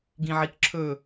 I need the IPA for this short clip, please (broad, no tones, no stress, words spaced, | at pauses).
ɡĩʕikǁʰɵ